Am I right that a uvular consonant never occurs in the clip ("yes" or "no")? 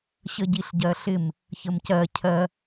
yes